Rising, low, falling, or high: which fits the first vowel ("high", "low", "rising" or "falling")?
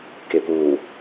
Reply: low